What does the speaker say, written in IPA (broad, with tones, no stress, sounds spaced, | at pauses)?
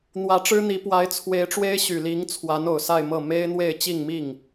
n̪ w ä˧˥ ʈ͡ʂ ɻ̩˥ n̪ i˧˥ p w a˧˥ ɪ̯ t͡sʰ w e˧˥ ɪ̯ ʈ͡ʂ w e˥ ɪ̯ ɕ y˨˩ l i˧˥ ŋ t͡sʰ w a˧˥ n o˨˩ ʊ̯ s a˥˧ ɪ̯ m ɤ˥˩ m e˥ ɪ̯ n̪ w e˥˧ ɪ̯ t͡ɕ i˥˧ ŋ m i˥˩ ŋ